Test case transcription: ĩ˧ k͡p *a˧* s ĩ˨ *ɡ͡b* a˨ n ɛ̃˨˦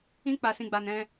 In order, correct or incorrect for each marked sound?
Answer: incorrect: a˨, correct

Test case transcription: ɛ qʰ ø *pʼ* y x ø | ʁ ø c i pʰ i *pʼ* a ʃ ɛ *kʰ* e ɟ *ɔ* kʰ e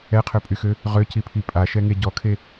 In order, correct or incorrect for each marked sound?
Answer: correct, correct, incorrect: ŋ, correct

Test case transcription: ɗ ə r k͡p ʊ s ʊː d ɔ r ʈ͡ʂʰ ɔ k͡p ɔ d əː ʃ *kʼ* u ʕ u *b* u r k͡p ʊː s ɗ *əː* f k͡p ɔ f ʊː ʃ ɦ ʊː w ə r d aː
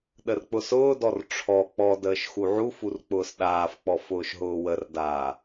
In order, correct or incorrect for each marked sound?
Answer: incorrect: x, incorrect: f, incorrect: aː

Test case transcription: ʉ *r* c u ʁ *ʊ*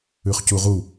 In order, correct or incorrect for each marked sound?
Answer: incorrect: χ, incorrect: u

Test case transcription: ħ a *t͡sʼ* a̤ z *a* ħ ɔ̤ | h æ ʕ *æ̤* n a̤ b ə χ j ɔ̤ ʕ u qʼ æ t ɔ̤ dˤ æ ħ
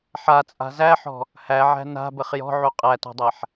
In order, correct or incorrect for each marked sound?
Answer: correct, incorrect: æ, correct

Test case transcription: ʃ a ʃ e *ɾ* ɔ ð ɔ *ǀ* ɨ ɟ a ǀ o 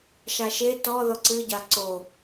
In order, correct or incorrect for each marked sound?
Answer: incorrect: t, correct

